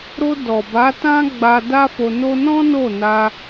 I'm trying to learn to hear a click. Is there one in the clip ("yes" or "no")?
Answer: no